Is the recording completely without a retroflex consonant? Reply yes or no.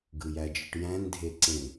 no